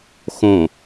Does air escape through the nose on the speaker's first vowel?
yes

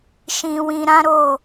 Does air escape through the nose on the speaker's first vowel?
yes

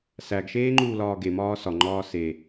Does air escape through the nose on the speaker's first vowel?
no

